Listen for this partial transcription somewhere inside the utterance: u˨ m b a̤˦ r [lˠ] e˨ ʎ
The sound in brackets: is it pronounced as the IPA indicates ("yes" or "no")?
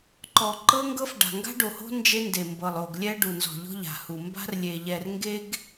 no